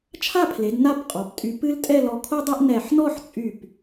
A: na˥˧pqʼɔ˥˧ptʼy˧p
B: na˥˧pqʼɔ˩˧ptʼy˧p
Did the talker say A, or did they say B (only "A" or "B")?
B